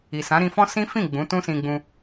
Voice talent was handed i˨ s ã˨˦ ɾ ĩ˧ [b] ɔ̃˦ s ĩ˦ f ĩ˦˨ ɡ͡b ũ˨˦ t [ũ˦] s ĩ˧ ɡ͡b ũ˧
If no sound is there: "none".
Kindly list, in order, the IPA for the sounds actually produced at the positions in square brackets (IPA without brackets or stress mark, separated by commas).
f, ũ˦